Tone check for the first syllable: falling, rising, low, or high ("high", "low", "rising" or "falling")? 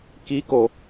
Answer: rising